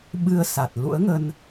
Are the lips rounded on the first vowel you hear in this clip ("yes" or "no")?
no